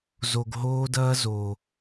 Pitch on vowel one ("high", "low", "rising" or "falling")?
low